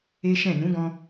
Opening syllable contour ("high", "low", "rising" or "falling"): high